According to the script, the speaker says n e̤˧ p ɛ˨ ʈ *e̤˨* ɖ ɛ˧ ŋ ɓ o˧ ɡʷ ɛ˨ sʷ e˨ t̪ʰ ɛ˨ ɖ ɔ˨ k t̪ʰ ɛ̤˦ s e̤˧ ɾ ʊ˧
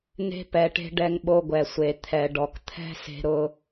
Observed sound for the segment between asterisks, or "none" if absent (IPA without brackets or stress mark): e̤˧